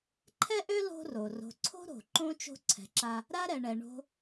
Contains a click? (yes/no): yes